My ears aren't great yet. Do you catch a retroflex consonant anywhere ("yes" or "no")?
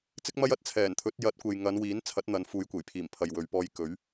no